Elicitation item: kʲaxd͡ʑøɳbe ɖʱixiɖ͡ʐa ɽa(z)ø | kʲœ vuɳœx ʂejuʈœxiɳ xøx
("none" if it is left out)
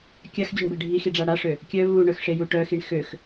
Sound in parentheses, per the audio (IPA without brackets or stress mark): ʂ